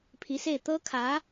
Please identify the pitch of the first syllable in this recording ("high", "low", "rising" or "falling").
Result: rising